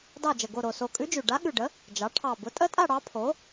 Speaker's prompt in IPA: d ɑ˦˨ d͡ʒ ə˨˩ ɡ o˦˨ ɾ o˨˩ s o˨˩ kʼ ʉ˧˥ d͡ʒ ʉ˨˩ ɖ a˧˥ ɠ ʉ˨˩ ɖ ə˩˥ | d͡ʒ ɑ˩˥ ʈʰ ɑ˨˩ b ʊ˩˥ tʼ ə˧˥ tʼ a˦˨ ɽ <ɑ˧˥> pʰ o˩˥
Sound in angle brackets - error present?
no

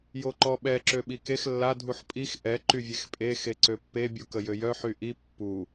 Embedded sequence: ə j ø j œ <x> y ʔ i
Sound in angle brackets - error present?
yes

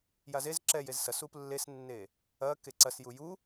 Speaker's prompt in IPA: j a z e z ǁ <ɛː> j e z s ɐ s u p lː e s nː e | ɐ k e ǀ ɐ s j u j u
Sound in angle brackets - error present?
yes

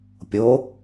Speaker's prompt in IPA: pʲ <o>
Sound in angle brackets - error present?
no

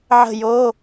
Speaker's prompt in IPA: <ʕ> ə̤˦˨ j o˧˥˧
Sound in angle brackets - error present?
no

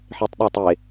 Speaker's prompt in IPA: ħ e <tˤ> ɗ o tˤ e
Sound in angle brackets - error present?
no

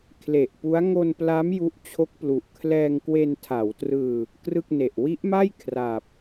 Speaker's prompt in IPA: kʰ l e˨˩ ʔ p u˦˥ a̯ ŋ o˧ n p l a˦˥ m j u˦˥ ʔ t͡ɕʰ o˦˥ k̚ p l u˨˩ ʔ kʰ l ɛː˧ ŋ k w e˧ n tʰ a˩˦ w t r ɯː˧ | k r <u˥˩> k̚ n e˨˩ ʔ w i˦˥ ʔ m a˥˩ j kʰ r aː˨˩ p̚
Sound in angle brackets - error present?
yes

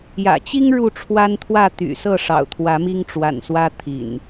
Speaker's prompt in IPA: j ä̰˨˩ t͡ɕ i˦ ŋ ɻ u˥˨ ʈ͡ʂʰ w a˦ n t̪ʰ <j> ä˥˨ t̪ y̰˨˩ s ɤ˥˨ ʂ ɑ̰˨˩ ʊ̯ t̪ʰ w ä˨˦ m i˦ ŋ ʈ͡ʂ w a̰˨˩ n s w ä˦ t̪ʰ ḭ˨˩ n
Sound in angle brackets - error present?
yes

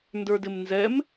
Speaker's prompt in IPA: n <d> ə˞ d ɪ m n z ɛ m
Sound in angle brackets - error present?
no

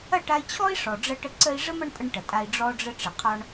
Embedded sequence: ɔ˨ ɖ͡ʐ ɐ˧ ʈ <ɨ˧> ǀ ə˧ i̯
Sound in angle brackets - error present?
yes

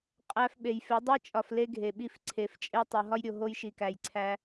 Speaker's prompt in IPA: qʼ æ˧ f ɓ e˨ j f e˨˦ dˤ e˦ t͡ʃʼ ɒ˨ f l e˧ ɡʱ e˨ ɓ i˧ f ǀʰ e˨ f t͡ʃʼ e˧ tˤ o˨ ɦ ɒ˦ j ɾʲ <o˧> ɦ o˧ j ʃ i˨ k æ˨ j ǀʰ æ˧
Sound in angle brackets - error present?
yes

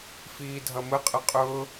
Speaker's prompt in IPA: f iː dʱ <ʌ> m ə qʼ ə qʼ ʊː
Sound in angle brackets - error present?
no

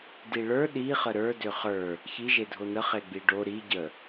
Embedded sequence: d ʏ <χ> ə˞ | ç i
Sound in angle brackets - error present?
no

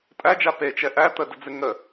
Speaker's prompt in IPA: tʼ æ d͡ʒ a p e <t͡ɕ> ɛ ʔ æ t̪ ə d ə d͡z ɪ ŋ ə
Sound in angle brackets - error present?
yes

